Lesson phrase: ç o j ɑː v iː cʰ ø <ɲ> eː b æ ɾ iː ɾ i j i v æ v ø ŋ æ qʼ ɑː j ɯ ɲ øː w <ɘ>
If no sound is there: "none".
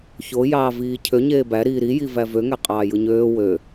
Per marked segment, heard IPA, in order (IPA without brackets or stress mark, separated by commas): ɲ, ø